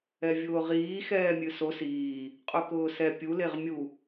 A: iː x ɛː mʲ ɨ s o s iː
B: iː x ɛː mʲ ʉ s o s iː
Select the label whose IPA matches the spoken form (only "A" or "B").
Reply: A